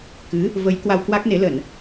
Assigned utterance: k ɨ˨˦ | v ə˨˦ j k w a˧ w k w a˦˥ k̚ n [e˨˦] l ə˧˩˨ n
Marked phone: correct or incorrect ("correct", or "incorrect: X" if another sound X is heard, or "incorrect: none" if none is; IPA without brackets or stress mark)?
correct